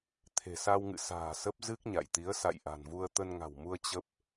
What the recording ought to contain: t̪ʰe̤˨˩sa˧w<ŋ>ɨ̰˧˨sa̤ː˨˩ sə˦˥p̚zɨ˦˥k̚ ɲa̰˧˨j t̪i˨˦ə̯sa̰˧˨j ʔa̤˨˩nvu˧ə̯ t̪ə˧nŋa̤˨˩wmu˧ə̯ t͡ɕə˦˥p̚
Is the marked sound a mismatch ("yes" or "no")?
no